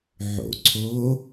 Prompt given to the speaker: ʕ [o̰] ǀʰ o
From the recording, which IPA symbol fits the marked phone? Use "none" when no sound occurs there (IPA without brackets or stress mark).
o̰